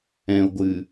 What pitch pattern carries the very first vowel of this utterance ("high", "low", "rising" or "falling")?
low